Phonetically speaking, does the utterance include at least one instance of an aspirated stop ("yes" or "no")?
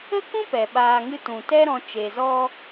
no